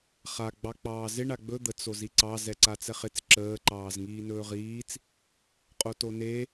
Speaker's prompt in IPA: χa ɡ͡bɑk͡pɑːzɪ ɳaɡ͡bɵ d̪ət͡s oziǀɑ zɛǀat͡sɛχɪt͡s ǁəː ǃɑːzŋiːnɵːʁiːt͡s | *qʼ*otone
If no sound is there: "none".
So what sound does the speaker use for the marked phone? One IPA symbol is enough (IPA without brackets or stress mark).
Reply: qʼ